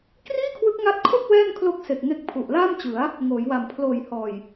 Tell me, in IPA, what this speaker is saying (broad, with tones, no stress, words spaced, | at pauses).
kriː˥˩kʰwɯ˦˥k̚ŋa˦˥t̚kʰo˥˩k̚ wɛː˥˩n kʰlo˦˥k̚se˨˩k̚ ŋe˦˥k̚ pʰu˨˩ʔlaː˥˩mt͡ɕɯ˩˦a̯ | ŋoː˩˦jwa˨˩m pʰloː˨˩jhɔː˨˩j